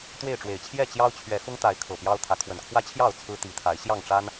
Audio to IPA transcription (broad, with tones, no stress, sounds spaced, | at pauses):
t̪ w e˥˨ ɪ̯ ʈ͡ʂ w e˨˩ ɪ̯ t͡ɕʰ j ɛ˥˨ t͡ɕ j ɑ˦ ʊ̯ t͡ɕʰ ɥ ɛ˨˦ x ʊ˦ ŋ t̪ a˨˦ ɪ̯ kʰ ɤ˨˩ p j ɑ˦ ʊ̯ t̪ʰ ä˨˦ kʰ w ə˨˩ n kʰ w ä˦ t͡ɕʰ j ɑ˥˨ ʊ̯ t͡sʰ ɹ̩˦ t̪ i˨˦ t̪ʰ a˨˦ ɪ̯ ɕ j ɑ˥˨ ŋ ʈ͡ʂ a˦ n